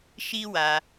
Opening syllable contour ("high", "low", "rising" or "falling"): high